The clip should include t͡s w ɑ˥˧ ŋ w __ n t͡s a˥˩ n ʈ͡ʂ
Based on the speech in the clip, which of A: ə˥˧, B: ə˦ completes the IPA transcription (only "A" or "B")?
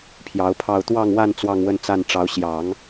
A